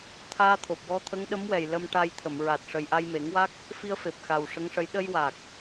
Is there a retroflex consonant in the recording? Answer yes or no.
yes